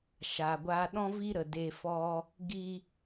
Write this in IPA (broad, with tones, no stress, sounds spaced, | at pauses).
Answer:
ʃ a˨ ɡʷ aː˧ ɗ ɔ̃˦ v i˦ ɾ ə˨ d e˧ f ɔ˦ | ɡ i˧